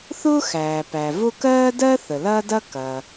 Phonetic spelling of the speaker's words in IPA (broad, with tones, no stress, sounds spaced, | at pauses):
θ ʊː˥ x æː˩ p æ˩ v ʊ˥ k ɜː˥ d ɜ˥ θ ə˩ l ɐː˥ d ɐ˥ k ɐ˩